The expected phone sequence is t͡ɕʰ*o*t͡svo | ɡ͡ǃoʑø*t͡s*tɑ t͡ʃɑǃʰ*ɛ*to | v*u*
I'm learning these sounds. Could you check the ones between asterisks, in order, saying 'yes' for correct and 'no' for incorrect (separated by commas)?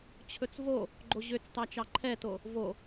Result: no, yes, yes, no